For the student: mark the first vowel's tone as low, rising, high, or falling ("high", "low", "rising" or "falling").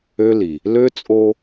high